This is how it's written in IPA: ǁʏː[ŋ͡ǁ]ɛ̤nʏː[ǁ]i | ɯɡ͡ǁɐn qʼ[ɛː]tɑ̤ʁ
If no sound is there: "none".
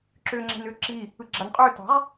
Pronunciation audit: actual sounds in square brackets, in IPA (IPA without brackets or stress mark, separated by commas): ŋ͡ǁ, ǁ, ʏː